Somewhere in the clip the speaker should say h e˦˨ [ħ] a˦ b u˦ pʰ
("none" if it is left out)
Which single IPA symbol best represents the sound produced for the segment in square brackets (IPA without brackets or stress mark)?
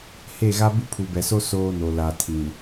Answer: ɣ